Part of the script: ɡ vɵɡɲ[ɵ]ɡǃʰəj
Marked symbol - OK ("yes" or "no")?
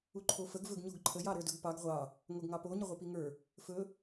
no